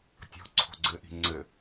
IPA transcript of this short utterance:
tʲɔ̤ ǀʰo̤ɡ͡ǀɘʔi̤ ŋ͡ǀɘ

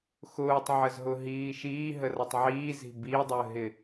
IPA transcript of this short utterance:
xʊːtˤʕəzɦʊɦiː ʃiːɦərʌtˤ ʕiːzi̤ bidˤəːɦɪ

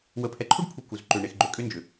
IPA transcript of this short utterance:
wə˨pʰɛ˨ǃʰu˦ɖpʰu˨ ku˨z ǃʏ˨ ɳe˨xɡ͡ǃʏ˨ kʼʏ˦nd͡ʒʏ˨

